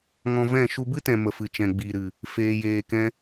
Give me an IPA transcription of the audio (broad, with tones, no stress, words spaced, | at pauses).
ŋɔ̃˧vɛ̃˦˨ ʃu˧bɨ˦tɛ̃˨ mə˨fɨ˨t͡ʃɛ̃˨ ɡ͡bi˨ɾɨ˨ | feː˧jeː˧kɛ̃˦